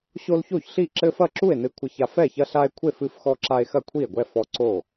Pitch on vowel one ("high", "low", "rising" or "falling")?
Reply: high